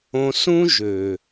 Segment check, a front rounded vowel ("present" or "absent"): present